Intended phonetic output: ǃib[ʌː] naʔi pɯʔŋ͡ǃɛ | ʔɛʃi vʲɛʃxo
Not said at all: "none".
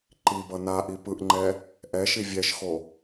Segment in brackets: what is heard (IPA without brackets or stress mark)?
ʌ